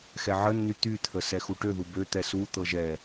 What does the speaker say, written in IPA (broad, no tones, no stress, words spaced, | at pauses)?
xɛʕənːy t̪yt̪ʰə sɛxuʈøðu bøt̪ɛ sut̪ɤ ʒɛ